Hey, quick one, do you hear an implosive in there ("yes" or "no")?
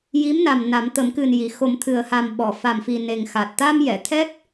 yes